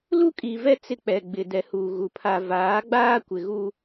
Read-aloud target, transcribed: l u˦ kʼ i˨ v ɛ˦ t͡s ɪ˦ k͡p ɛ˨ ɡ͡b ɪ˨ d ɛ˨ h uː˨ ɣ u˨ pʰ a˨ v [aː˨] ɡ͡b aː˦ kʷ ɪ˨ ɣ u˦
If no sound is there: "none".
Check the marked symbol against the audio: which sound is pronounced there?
aː˨˦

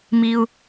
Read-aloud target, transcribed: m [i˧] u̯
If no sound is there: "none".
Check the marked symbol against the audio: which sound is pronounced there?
i˧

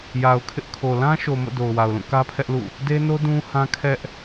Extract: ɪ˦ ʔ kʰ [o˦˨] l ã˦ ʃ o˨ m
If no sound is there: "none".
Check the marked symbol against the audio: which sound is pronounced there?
o˨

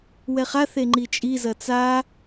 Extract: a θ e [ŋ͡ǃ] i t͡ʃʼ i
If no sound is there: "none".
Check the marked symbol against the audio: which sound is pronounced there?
ŋ͡ǃ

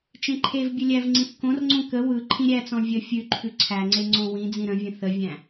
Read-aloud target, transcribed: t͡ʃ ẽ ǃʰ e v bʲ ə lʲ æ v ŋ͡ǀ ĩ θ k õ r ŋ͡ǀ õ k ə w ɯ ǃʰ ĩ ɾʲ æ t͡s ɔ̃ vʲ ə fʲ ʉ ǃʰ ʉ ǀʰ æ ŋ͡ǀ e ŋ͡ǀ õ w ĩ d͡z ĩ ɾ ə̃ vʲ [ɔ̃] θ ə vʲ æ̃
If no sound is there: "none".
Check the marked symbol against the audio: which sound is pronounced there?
ə̃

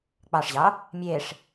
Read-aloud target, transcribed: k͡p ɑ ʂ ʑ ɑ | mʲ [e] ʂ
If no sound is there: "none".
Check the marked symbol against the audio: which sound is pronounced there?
e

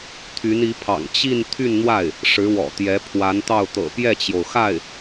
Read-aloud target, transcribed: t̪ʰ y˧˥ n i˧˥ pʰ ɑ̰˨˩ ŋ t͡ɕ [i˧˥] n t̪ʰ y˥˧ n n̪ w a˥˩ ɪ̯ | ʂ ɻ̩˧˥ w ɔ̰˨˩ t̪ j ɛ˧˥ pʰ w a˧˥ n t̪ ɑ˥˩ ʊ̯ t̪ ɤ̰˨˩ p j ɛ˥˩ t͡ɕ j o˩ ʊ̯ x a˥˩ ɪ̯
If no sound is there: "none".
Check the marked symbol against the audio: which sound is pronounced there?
i˥˧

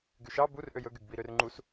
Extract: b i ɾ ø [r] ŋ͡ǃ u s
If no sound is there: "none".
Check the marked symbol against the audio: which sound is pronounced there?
r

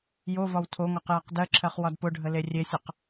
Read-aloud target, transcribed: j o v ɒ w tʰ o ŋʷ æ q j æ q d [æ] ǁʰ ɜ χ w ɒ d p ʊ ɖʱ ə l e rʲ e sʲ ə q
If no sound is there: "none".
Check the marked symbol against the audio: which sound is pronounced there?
ɜ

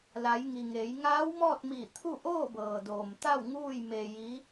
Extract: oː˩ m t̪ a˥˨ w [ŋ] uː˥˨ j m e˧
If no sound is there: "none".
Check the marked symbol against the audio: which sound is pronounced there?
ŋ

